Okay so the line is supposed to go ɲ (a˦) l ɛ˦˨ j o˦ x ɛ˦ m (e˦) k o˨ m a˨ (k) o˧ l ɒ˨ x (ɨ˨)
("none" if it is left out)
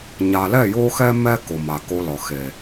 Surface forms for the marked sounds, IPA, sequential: a˨, ɛ˦, k, e˨

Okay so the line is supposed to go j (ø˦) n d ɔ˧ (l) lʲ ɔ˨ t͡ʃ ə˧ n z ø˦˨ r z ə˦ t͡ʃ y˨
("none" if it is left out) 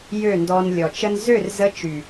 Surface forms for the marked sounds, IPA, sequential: ø˦˨, n

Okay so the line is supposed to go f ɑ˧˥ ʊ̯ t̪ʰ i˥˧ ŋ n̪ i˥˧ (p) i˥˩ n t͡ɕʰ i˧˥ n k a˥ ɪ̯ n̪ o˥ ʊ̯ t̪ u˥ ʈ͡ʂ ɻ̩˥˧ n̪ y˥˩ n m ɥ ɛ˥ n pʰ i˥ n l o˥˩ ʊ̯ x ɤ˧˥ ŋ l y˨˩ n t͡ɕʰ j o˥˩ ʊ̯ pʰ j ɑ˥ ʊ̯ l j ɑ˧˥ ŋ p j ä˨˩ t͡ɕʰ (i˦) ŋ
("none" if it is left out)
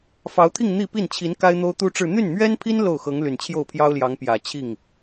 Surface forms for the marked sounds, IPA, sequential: p, i˥˩

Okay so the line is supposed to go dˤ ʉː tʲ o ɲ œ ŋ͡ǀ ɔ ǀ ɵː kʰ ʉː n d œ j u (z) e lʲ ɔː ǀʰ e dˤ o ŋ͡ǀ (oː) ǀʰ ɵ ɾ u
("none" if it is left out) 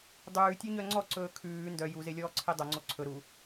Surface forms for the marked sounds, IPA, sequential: z, o

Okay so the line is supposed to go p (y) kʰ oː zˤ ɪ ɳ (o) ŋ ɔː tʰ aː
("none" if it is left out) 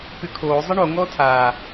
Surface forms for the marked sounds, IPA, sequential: y, o

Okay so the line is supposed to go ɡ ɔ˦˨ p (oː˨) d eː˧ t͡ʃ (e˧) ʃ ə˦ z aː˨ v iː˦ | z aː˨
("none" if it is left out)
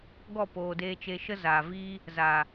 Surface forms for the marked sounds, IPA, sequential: oː˨, e˧

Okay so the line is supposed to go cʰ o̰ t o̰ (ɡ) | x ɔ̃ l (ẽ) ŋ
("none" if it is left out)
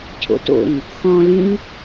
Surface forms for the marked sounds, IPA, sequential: ŋ, ĩ

